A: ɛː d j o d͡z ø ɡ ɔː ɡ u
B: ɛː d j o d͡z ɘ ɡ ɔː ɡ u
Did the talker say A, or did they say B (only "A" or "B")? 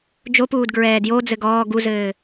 B